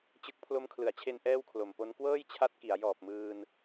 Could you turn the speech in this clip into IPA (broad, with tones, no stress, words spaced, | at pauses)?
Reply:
t͡ɕɯ˦˥k̚ pʰlo˧mkʰlɯ˩˦a̯t͡ɕʰe˧n ʔɛː˥˩wkʰlo˨˩m po˦˥n kwɤː˥˩jt͡ɕʰa˦˥t̚ ki˩˦a̯ jɔː˨˩p̚mɯː˧n